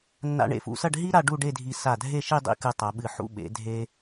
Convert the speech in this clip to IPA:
nːa̰˧ɳḛ˧˩fṵ˧sɐ˥˧ɖ ɦi˥ ɾa˥˧ɖu˥˧ɖe˥˧dʱi˧ sa˧˩dʱe˥˧ ʃi˥˧dˤḭ˥˧kɨ˧ tˤa˩˧ɓɨ˧˩ ħṵ˥˧ ɓḛ˩˧dʱe˧

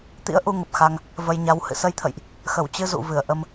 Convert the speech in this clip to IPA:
t̪ḭ˧˥ə̯ʔu˧ ŋə˨˩p̚xa˧ŋ | və˧jɲa˨˦w hɨ̰˧˨sə˧jt̪ʰə̰˧˨jʔ | xə˧˩wt͡ɕɨ˧ zṵ˧˨vɨ˧˩ə̯ ʔə˧m

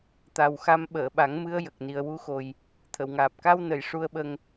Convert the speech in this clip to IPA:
t̪a˨˩wxa˧m ɓəː˨˩˨ɓa˨˩˦ŋmɨ˧ə̯ jə˨˩k̚ni˨˩ə̯wu˧xo˨˩j | t̪ʰə˨˩˨wŋaː˨˩p̚ ka˧wnə˨˩˨j ʂu˧ə̯ɓə˧ŋ

